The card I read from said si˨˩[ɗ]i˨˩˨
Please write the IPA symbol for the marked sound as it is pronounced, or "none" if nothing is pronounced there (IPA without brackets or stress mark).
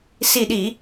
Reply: ɗ